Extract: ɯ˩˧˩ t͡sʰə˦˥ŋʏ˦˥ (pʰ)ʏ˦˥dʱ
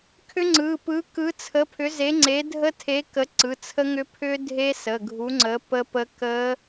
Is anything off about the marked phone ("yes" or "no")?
no